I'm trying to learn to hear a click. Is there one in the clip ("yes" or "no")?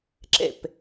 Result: yes